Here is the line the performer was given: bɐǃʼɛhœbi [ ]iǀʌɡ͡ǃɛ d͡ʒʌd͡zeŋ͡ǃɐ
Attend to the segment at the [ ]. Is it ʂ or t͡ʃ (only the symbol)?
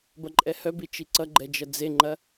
t͡ʃ